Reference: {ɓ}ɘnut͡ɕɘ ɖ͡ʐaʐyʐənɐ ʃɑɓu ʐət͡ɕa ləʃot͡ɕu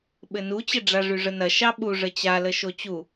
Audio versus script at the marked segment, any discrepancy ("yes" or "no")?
no